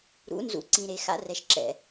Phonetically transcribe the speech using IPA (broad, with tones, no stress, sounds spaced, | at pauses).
ɾ ṵ˨˦ n z ṵ˨ ǀ ĩ˨ ɾ e˨ x a̰˦ r ɛ˨ ʃ ǁ ɛ̰˨